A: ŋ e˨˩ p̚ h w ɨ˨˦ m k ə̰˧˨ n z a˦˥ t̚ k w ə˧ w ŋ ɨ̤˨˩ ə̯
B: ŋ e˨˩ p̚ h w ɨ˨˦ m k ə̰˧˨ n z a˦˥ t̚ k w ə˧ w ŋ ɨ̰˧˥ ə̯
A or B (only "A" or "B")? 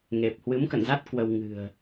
A